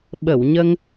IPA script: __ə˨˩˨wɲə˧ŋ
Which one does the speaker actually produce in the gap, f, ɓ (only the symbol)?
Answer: ɓ